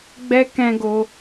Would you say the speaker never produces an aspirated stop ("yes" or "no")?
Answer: yes